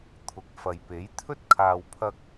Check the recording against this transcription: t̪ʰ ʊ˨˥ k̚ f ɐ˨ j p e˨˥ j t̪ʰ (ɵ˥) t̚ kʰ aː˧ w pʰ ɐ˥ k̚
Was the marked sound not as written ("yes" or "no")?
no